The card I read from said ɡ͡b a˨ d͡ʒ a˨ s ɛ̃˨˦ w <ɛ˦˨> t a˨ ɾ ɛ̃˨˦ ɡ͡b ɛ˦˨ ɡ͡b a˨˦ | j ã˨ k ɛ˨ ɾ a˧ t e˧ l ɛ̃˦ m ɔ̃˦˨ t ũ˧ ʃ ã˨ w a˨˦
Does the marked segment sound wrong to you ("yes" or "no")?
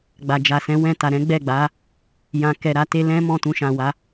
yes